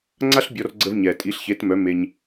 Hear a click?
yes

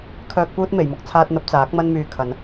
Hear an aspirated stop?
yes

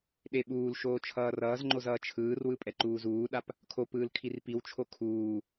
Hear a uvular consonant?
no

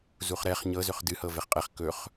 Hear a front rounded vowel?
yes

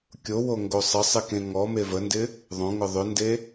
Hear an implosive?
no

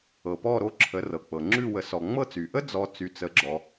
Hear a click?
yes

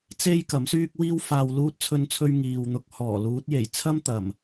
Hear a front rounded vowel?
yes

